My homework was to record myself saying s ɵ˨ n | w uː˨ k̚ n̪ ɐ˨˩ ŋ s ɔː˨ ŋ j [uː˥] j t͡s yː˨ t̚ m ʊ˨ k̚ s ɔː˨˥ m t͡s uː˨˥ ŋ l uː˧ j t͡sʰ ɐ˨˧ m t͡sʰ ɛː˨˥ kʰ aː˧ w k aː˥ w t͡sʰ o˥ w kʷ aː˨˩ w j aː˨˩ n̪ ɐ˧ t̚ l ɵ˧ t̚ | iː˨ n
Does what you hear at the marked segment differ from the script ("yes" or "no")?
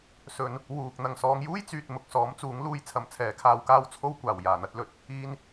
no